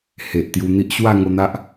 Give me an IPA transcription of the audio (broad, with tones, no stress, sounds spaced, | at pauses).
h e˨ ʔ t̪ j u˧ n̪ i˦ ʔ ɕ w a˥˧ ŋ o˧ n̪ a˦ ʔ